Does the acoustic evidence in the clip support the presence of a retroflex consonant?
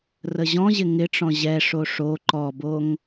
yes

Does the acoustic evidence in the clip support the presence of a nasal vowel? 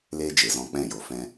yes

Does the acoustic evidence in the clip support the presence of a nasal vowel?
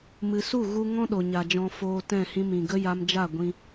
yes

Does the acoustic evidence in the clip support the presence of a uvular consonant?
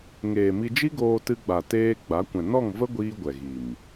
no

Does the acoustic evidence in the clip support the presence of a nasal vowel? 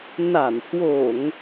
no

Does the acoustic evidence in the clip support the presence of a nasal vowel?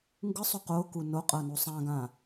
yes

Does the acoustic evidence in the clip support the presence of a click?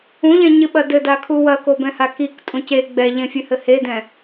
no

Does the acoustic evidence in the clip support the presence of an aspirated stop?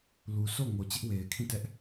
yes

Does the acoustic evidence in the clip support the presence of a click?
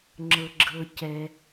yes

